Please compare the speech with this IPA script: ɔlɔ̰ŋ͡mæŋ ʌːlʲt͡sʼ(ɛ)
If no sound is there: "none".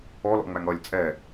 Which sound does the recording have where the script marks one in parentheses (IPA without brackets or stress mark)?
ɛ